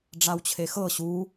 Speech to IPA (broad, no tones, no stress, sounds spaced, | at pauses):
ɖ͡ʐ a w t͡ɕʰ e x ɤ ɕ u